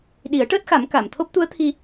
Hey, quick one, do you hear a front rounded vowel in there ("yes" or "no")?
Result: no